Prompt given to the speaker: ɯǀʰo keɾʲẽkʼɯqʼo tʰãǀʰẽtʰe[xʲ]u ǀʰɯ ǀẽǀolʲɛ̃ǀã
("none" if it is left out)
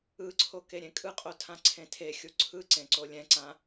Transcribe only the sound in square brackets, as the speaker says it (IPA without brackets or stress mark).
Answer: xʲ